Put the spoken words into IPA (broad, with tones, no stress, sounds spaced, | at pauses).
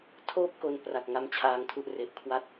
tʰ oː˥˩ p̚ k o˧ n p r a˨˩ k̚ ŋ a˦˥ m t͡ɕʰ aː˧ ŋ tʰ u˥˩ ʔ r e˨˩ ʔ kʰ w a˥˩ t̚